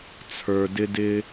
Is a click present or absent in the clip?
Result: absent